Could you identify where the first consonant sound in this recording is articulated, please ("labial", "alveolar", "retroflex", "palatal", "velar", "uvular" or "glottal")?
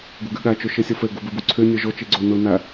velar